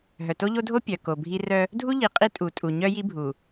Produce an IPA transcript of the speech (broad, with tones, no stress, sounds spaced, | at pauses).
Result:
ɦ œ˨ t o˦ ʎ o˦ dʱ o˦ pʲ œ˨ k o˨ bʱ i˦ r œ˦ | dʱ u˦ ʎ i˨ qʼ i˦ tʼ u˨ tʼ u˨ ɲ œ˦ j i˦ bʱ u˨